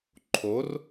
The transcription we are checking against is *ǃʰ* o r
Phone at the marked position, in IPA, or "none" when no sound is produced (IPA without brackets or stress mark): ǃʰ